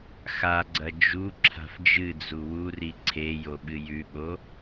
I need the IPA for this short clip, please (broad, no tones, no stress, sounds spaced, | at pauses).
x a ɡ͡ǀ ɐ d͡ʒ u ǁʰ a̤ f d͡ʒ ɨ d͡z u w u r i ǀʰ e j o ɓ ɨ j ʉ ɓ o